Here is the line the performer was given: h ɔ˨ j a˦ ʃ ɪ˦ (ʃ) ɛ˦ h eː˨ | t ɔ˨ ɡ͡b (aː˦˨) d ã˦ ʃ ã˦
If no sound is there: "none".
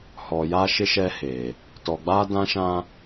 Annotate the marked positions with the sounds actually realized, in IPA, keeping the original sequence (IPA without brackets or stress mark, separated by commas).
ʃ, aː˦